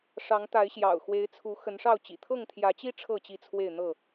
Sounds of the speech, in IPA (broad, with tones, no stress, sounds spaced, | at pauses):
ʂ ɑ˨˦ ŋ t̪ a˨˦ ɪ̯ ɕ j ɑ̰˨˩ ʊ̯ x w e˨˦ ɪ̯ t͡sʰ u˨˦ x ə˨˦ n ʂ ɑ˥˨ ʊ̯ t͡ɕ ḭ˨˩ t̪ʰ ɤ˥˨ ŋ t̪ʰ j ä˨˦ t͡ɕ i˦ ʈ͡ʂʰ ɤ˥˨ t͡ɕ i˥˨ t͡sʰ w e˥˨ ɪ̯ n̪ ɤ˥˨